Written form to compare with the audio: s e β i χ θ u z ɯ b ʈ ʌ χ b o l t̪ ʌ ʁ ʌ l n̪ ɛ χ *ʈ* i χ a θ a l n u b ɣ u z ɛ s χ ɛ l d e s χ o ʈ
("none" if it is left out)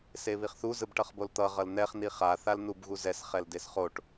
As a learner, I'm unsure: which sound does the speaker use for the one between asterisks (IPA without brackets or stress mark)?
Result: n